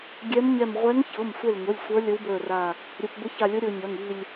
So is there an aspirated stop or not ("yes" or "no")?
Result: no